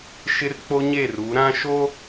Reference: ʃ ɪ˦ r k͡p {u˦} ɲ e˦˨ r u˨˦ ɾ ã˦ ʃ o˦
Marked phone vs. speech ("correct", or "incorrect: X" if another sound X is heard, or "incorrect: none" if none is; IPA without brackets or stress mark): incorrect: o˦